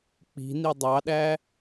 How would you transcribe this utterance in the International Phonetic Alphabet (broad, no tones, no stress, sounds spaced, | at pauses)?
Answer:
k͡p i̤ n i dˤ ɑ ɗ æ